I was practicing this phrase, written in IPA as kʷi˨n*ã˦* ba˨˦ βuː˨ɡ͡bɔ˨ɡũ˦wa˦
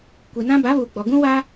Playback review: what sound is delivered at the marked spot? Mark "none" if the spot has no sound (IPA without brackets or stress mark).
ã˦